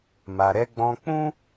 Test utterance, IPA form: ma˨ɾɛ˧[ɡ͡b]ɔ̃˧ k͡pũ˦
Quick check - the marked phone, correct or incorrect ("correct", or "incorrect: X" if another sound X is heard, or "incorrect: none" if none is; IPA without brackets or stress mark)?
correct